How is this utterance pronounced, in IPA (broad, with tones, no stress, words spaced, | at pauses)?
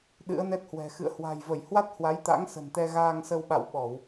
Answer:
ɗɨ̰˧˥ə̯nɛ˦˥t̚hwɛ̤˨˩ xɨ̰˧˨ə̯hwa̤˨˩jvə˧˩j hwa˦˥t̚ hwa˨˦jt̪a̰˧˥ŋsə̤˨˩nt̪ɛ˧ ɣaː˧ŋsə˧wɓa̰˧˨wɓɔ˧˩˨w